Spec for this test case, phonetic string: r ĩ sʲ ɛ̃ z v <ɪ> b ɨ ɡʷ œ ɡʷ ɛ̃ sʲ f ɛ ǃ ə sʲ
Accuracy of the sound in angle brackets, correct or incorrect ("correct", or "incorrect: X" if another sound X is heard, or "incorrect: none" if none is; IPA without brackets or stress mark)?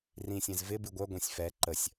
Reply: correct